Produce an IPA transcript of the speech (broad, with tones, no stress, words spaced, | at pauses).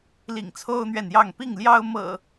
lḭ˨˩ŋt͡sʰo˦ʊ̯n̪ɥɛ˨njɑ˥˨ŋ pi˥˨ŋljɑ˦ʊ̯ mɤ̰˨˩